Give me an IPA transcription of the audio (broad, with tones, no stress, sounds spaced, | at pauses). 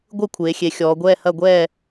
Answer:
ɡʷ ɯ˥˨ kʷʰ eː˩˧ xʲ e˩˧ xʲ ɔː˩˧ ɡʷ ɛː˥˨ h ɐ˥˨ ɡʷ ɛː˥˨